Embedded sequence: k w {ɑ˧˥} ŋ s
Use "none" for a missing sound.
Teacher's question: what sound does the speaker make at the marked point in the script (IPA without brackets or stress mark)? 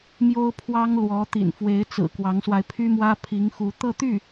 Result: ɑ˧˥